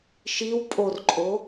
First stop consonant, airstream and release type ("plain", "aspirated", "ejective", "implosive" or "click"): ejective